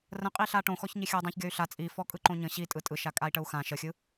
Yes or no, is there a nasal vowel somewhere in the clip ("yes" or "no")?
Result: yes